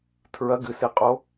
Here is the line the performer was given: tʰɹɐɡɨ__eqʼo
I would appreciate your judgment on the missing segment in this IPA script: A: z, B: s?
B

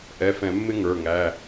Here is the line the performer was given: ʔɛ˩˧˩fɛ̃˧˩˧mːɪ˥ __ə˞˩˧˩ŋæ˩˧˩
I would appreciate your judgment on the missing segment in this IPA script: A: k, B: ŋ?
B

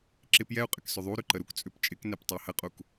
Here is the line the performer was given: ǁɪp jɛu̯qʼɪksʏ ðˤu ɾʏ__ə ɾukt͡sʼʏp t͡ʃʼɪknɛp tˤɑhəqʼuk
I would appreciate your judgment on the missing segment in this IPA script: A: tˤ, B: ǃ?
B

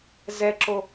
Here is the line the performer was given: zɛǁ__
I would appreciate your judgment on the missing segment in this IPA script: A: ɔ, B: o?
B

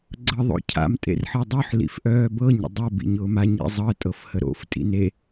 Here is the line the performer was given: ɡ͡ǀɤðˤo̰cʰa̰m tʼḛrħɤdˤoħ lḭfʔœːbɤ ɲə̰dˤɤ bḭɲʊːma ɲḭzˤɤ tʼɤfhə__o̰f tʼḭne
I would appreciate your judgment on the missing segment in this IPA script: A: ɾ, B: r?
A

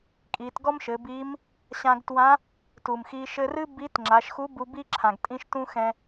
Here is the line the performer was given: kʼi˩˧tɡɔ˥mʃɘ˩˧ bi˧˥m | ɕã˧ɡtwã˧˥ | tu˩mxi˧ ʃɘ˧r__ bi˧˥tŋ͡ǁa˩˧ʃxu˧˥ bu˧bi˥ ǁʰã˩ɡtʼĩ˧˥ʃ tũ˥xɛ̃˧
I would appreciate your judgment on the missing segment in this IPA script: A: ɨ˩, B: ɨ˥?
B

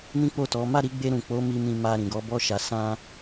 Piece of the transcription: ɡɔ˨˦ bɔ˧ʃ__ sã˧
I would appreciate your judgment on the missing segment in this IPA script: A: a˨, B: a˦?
A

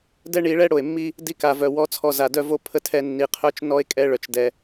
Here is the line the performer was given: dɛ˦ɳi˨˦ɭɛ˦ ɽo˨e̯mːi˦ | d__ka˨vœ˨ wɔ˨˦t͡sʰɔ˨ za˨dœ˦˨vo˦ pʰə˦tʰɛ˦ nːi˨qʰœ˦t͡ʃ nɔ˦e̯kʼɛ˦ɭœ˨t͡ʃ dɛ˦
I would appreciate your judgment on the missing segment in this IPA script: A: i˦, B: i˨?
A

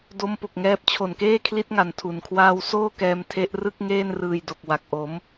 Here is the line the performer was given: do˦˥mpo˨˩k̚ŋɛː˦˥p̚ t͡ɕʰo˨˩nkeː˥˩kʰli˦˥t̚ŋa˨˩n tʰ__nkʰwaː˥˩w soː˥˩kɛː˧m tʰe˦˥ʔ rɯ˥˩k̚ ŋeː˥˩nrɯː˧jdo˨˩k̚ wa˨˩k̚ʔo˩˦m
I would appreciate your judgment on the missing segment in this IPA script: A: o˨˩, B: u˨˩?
B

